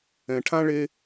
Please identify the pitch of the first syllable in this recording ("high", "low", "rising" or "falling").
low